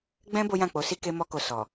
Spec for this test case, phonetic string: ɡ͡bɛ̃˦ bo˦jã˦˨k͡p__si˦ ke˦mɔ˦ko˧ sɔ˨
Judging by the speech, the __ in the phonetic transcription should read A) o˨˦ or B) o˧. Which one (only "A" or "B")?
A